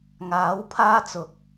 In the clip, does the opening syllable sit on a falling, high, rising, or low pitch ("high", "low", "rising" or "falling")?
rising